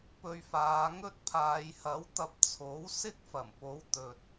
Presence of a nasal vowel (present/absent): absent